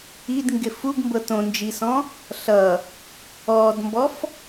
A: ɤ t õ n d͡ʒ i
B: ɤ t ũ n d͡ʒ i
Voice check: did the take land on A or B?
A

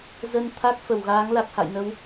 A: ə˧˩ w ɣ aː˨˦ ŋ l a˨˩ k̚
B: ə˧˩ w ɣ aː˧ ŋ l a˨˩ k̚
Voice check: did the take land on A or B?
A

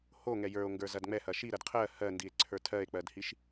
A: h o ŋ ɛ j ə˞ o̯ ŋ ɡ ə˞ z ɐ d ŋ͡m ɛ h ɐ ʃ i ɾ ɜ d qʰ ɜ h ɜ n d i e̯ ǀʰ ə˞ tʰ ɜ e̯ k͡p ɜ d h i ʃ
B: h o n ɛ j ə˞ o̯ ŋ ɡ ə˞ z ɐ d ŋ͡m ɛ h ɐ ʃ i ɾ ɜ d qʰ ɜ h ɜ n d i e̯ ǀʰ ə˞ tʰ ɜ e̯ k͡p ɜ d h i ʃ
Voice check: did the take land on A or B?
A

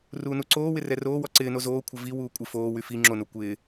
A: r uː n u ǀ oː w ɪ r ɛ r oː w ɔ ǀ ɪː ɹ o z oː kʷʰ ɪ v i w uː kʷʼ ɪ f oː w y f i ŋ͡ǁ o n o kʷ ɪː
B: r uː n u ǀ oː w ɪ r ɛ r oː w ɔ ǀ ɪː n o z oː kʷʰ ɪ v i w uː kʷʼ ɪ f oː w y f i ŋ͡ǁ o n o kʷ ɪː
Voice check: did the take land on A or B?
B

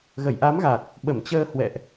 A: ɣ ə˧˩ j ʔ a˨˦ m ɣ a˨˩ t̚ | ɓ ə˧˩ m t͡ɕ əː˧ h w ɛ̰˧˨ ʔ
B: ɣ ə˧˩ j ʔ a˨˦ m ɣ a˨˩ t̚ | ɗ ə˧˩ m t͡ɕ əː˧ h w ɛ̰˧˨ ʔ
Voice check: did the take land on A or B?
A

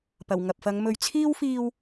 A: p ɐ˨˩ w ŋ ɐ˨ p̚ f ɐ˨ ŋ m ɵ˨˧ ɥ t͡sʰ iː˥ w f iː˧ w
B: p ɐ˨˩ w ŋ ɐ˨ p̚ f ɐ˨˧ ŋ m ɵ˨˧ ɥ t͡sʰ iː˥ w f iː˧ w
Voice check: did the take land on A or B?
B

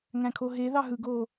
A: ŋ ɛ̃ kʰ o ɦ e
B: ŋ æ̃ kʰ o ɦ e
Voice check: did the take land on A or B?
B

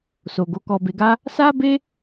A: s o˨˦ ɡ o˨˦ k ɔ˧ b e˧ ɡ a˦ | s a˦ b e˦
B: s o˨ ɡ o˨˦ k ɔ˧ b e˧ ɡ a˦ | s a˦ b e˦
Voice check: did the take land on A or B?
B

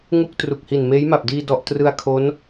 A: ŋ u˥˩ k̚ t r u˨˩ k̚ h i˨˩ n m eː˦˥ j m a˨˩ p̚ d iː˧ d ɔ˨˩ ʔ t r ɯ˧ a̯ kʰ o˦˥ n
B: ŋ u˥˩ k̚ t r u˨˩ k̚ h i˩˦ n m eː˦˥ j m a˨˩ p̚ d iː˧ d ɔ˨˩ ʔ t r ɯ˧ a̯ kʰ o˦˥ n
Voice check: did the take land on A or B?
A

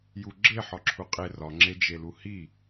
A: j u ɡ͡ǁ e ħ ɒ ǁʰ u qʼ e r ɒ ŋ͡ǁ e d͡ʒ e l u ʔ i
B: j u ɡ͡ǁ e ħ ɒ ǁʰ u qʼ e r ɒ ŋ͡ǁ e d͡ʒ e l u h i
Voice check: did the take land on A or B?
B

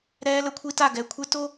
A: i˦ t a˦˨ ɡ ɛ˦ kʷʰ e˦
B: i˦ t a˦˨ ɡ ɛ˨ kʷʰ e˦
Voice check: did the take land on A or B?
B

